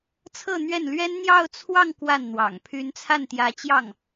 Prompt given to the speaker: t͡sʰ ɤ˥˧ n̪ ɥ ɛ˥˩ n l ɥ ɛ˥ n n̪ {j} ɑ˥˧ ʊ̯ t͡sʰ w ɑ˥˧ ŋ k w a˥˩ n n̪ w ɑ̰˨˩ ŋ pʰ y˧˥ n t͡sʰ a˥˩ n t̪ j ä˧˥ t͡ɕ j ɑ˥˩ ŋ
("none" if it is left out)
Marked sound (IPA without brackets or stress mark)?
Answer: j